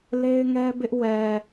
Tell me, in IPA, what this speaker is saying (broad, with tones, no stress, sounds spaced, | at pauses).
l e˦ ɪ̯ ŋ ɛ˦ b ɪ˦ ʔ w ɛ˨